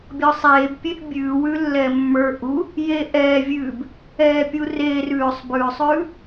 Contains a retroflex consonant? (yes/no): no